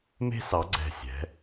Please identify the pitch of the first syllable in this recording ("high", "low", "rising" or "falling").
high